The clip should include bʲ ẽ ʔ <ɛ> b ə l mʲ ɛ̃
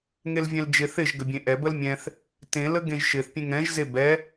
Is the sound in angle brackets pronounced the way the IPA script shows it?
yes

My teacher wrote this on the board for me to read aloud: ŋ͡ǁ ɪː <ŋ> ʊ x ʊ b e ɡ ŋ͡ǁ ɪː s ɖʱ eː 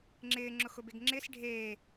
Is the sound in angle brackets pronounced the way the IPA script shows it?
no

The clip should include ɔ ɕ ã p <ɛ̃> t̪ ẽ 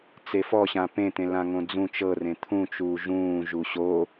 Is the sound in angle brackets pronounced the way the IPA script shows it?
no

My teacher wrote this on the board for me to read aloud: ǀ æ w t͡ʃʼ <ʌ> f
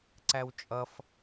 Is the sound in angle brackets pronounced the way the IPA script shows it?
yes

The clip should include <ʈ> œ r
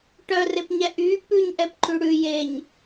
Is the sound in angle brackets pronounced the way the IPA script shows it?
yes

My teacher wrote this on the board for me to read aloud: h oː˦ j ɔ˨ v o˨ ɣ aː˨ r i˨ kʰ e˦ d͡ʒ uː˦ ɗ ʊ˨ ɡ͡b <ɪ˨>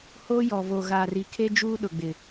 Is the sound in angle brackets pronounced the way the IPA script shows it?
yes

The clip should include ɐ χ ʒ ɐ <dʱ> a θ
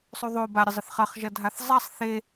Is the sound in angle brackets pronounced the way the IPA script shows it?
yes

